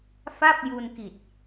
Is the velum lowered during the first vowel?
no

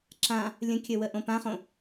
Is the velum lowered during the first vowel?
yes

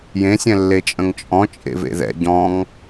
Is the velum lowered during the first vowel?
yes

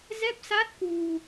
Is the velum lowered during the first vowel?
no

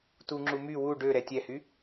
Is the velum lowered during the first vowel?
no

